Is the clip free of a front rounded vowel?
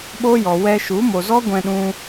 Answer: yes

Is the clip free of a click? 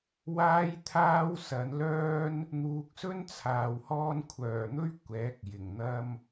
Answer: yes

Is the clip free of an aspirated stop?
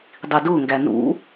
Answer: yes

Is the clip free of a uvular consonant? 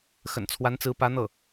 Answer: yes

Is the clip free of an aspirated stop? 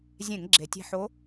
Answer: yes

